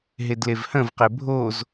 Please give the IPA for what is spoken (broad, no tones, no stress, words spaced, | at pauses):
ɦedlevhə̃v qebʱoz